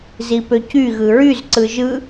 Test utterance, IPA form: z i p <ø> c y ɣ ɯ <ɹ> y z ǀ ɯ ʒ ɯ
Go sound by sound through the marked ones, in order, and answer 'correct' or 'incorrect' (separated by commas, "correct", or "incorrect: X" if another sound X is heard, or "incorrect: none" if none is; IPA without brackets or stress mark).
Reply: correct, correct